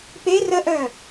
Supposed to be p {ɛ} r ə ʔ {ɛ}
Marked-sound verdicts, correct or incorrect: incorrect: e, incorrect: œ

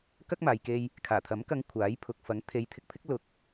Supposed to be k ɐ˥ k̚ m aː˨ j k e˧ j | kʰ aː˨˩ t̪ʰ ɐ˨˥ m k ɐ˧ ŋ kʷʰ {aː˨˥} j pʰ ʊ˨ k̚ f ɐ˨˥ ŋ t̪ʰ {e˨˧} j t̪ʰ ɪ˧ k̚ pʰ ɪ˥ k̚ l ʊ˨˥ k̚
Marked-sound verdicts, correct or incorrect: correct, correct

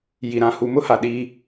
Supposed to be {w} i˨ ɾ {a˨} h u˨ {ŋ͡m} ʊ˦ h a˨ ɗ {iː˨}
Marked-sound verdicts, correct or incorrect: incorrect: j, incorrect: ã˨, incorrect: m, incorrect: iː˦

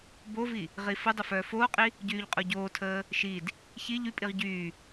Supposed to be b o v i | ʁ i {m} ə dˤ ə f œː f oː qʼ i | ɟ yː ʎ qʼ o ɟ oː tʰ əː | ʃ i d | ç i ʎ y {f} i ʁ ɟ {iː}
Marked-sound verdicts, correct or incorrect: incorrect: f, incorrect: pʼ, incorrect: yː

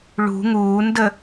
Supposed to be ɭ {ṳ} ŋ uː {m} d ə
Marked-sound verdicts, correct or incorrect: correct, incorrect: n

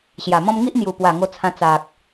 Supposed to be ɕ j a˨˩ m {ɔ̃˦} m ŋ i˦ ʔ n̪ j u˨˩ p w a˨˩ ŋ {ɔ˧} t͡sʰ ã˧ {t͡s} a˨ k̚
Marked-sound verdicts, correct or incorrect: correct, incorrect: o˧, correct

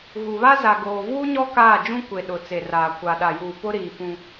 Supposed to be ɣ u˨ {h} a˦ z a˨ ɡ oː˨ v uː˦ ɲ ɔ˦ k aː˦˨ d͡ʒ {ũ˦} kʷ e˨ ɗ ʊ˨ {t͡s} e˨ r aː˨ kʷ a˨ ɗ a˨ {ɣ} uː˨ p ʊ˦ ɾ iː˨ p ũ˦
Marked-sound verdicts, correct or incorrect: incorrect: β, correct, correct, incorrect: j

